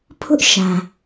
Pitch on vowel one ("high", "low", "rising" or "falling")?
high